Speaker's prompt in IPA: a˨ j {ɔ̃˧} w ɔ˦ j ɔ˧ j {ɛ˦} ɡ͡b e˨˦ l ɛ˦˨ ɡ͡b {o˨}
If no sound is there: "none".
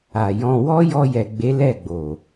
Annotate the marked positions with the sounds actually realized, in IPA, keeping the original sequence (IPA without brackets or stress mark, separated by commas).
ɔ̃˧, ɛ˨, o˨